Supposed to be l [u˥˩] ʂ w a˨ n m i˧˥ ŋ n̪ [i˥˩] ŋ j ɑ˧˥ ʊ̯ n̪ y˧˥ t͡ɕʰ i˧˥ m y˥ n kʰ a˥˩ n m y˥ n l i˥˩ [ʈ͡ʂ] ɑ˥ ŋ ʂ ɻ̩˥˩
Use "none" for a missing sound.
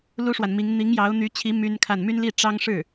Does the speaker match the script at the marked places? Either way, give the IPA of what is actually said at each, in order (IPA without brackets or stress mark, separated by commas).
u˥, i˧˥, ʈ͡ʂ